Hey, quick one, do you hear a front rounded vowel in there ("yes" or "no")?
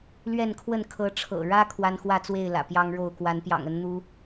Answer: no